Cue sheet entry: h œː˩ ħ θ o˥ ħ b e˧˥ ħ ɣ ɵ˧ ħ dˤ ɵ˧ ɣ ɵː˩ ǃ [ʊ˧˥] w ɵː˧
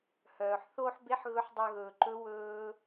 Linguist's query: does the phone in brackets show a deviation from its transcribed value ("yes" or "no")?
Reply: yes